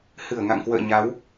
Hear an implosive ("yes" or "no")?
no